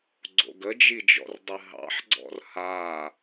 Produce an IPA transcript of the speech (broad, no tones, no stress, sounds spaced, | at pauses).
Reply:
ɡ͡ǀ o̰ ɡ ə d͡ʒ i d͡ʒ ɔ̰ r dˤ ɨ ɦ ɑ̰ ħ ɡ͡ǀ ɔ̰ r h a